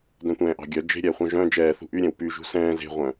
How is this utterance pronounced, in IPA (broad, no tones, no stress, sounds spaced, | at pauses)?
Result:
d œ̃ tʷ ɛ̃ː ʔ ɑ̤ ɡʲ œ d͡ʒ e̤ ɾʲ ɛː χʷ œ̃ ʒ œ̃ d͡ʒ ɛː θ ṳ ʔ y ɾʲ ɛ̃ w p y ʒ ṳ s ɛ̃ː z e̤ ʁʷ œ̃